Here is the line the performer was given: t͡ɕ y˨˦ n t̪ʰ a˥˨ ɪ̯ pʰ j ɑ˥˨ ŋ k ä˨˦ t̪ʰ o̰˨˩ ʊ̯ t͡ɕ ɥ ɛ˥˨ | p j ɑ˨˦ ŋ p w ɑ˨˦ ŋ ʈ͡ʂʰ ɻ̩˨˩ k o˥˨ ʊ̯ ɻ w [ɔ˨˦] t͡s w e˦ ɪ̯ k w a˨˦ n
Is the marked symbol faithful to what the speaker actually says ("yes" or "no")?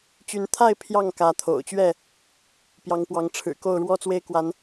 no